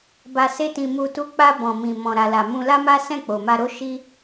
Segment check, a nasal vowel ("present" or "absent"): present